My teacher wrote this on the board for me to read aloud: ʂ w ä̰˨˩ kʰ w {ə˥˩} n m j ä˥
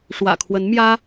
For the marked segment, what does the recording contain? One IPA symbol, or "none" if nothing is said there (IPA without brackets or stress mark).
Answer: ə˧˥